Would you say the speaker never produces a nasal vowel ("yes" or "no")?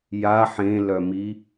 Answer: no